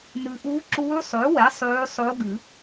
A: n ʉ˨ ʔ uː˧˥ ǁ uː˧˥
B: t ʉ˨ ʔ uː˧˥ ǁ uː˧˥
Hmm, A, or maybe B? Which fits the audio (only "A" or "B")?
A